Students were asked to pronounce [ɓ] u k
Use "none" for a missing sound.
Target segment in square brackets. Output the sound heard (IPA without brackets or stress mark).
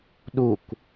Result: ɗ